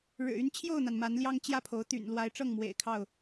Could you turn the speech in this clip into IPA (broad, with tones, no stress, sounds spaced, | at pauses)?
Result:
ɻ ɻ̩˨˩ y˦ n t͡ɕʰ j o˥˨ ʊ̯ n̪ a˩ n m a˨˦ n l j ɑ˦ ŋ t͡ɕ j ä˥˨ pʰ o˨˦ ʊ̯ t̪ y̰˨˩ n l w a˨˦ ɪ̯ ʈ͡ʂ ɤ˥˨ ŋ m w ḛ˨˩ ɪ̯ kʰ ɑ˥˨ ʊ̯